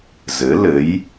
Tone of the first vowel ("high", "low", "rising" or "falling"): rising